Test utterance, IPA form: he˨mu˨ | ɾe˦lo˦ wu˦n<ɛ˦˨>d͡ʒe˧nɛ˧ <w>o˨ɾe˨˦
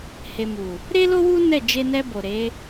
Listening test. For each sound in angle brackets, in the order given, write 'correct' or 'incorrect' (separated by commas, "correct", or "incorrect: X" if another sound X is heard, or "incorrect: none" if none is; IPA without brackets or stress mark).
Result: correct, incorrect: b